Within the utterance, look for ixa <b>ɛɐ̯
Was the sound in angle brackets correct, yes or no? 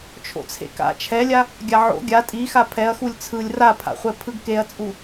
no